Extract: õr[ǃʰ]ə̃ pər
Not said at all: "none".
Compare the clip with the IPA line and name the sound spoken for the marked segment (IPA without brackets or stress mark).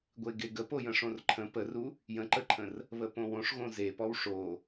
ǃʰ